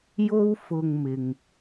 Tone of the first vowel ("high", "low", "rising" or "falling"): high